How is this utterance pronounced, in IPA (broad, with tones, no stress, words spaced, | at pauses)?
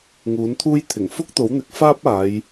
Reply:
ŋuː˨˥nt̪ʰuː˥j t̪ʰɪ˨˩ŋfʊ˥k̚t̪o˨˥wn̪ɪ˨˥k̚ faː˥p̚aː˨˧j